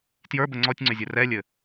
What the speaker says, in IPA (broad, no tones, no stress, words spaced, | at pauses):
tjə˞bə ŋ͡ǀɔtʲŋ͡ǀʏzʲɘ rɛlʲɘ